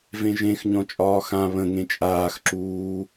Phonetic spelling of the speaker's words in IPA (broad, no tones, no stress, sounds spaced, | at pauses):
v ẽ ʒ ẽ x ɲ ɔ̃ t͡ʃʼ ɒː x ã β ə̃ ŋ ẽ t͡ʃʼ aː x ǁ uː